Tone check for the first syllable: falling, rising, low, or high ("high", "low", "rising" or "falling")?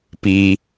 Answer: low